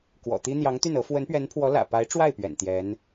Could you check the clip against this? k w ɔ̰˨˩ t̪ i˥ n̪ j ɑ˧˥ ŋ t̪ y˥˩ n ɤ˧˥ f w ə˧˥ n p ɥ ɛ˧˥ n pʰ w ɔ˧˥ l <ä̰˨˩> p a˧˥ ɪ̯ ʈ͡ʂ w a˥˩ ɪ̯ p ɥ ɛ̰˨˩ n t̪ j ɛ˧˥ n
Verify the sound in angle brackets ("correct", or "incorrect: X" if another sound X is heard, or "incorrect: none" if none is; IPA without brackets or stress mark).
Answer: correct